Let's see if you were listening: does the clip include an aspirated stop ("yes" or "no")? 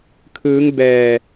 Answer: yes